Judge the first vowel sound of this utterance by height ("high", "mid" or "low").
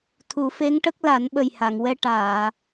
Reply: high